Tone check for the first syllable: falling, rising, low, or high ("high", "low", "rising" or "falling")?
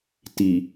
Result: low